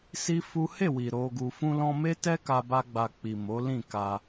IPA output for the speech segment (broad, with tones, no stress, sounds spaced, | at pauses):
s i˦ f u˦ h e˦˨ w i˨ ɾ o˧ ɡ u˧ f ũ˧ l ɔ̃˧ m e˦ t ɛ˦ k a˧ b a˧ ɡ͡b a˨ k͡p i˨ m o˨˦ l ĩ˦˨ k a˧